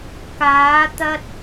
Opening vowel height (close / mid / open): open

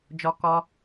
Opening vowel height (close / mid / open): mid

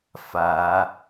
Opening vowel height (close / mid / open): open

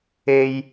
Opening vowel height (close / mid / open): mid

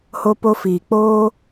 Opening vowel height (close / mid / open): mid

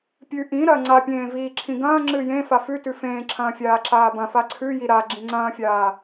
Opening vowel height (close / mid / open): close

